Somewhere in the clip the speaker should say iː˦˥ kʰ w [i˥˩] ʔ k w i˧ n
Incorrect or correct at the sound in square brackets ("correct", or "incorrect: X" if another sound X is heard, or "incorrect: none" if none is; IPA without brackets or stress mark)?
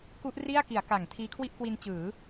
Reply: correct